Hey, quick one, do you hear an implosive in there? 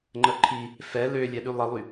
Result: yes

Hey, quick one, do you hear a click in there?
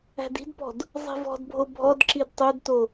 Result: yes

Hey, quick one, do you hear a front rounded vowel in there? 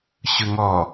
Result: no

